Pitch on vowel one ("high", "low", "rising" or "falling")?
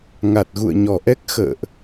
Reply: low